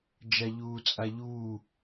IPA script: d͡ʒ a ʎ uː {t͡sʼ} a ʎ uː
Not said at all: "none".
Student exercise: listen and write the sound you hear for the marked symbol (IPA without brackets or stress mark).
t͡sʼ